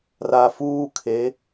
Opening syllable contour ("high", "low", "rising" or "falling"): low